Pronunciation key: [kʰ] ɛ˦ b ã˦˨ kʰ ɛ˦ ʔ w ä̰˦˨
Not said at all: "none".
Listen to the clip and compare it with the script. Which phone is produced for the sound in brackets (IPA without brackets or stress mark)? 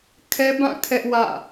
kʰ